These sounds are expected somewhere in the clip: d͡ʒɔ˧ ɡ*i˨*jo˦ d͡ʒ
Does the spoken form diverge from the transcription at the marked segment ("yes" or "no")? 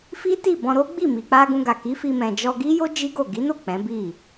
yes